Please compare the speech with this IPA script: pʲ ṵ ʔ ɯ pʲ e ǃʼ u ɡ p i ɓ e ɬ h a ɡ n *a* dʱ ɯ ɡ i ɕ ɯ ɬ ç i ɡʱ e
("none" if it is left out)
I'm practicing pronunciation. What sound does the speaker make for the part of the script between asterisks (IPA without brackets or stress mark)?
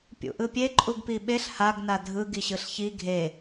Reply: a